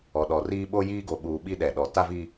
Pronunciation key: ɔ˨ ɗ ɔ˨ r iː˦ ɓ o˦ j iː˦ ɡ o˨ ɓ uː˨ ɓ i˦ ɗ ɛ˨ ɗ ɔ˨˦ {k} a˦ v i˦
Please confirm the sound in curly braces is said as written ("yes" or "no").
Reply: no